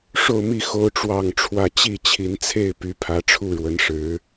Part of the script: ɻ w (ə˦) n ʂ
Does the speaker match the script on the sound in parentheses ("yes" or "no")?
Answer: no